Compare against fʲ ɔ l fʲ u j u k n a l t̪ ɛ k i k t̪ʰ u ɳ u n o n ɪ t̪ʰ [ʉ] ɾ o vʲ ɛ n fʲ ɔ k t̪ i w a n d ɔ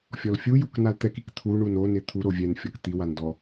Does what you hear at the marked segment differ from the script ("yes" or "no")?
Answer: yes